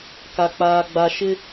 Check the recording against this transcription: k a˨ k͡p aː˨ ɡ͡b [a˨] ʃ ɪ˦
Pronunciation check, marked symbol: correct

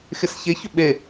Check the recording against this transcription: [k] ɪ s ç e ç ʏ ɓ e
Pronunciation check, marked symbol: incorrect: x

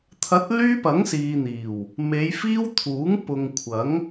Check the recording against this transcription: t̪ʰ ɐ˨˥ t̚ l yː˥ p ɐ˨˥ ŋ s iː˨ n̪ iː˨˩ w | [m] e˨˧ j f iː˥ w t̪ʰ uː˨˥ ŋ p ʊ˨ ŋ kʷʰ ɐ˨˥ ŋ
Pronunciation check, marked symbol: correct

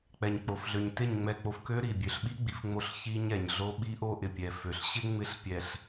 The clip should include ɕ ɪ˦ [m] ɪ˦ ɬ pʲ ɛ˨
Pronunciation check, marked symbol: incorrect: ŋ͡m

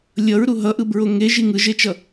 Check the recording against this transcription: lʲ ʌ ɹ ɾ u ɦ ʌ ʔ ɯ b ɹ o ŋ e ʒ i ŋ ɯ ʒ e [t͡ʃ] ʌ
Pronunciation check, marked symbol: correct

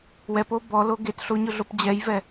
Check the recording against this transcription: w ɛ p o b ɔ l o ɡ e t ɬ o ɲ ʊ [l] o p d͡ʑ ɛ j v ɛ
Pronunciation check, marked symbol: incorrect: ɮ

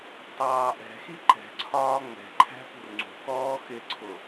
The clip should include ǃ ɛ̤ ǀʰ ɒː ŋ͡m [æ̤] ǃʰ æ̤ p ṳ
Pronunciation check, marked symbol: incorrect: ɛ̤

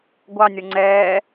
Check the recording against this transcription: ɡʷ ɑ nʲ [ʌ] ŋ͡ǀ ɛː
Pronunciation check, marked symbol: correct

